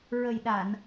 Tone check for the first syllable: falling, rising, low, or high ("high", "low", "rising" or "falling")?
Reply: low